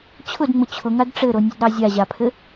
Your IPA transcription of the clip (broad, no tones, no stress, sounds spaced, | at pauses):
t͡ɕʰ ʊ d ŋ͡m ʊ t͡ɕʰ ʊ ŋ a d ʈ͡ʂ ɘ ɾ o nʲ ə d ɾ ɑ zʲ a ʑ a pʰ ɘ